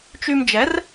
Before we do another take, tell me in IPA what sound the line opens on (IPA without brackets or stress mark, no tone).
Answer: t͡ʃ